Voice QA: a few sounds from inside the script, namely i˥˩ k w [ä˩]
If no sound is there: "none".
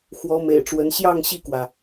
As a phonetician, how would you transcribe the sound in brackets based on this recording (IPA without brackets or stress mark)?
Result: ä˩